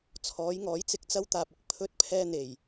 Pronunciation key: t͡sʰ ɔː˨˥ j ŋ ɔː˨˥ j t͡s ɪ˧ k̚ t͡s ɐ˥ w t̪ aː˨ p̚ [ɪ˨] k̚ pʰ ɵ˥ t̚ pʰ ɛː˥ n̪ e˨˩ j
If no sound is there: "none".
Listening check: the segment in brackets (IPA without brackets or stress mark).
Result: ɪ˨